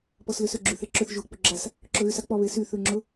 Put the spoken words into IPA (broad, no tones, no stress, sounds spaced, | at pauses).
p ɔ s l ʏ s ʏ ɡ͡ǁ y θ e ǁ ʏ θ ʒ u k͡p ʏ ɡ͡ǁ a s | ǁ ʊ ɣ y s a k͡p ɔ β e s y θ ʉ ŋ͡ǁ ʊ